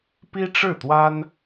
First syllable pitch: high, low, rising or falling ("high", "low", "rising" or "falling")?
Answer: high